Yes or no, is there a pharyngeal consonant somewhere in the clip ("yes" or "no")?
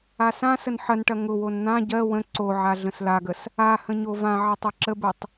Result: yes